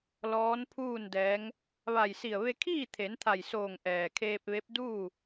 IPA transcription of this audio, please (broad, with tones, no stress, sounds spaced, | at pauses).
l ɔː˧˥ n pʰ uː˥˨ n d ɛː˧˥ ŋ | ʋ a˧˩ j s i˧˩ ə̯ ʋ e˧ kʰ iː˥˨ t̪ʰ e˩˧ n t̪ʰ a˧˩ j s oː˧˩ ŋ ʔ ɛː˩ kʰ eː˧ p̚ ʋ e˧˥ p̚ d uː˥˨